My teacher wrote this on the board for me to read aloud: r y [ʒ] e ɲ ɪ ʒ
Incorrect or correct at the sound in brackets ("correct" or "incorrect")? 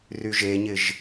correct